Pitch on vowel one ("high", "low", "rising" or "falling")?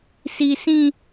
high